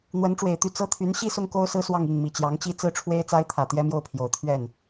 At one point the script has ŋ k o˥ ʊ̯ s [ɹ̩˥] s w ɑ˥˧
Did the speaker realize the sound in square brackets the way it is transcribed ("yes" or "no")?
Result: yes